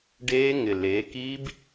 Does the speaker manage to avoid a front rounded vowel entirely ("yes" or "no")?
yes